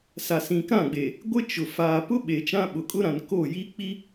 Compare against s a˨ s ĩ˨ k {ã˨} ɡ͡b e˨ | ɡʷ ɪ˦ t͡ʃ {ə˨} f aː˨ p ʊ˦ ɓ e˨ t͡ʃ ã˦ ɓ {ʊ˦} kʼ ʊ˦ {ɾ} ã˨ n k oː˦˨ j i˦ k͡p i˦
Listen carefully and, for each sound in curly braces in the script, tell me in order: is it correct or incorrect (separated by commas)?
incorrect, incorrect, incorrect, correct